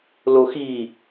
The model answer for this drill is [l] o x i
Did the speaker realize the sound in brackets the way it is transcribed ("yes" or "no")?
yes